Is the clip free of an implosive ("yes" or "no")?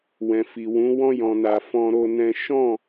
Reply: yes